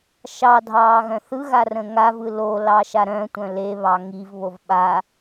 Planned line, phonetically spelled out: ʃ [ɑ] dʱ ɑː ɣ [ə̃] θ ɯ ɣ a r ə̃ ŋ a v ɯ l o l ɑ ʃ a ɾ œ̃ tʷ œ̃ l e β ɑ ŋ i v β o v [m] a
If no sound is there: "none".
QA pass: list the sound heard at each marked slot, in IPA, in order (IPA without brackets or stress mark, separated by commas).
ɑ, œ̃, ɓ